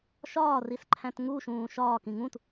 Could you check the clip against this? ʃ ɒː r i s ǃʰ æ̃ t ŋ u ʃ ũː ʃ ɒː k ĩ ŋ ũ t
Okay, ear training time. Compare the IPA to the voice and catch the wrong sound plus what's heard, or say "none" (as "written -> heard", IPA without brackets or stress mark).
none